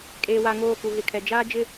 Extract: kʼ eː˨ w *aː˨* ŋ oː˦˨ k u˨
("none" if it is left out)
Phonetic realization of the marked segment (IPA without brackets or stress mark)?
a˨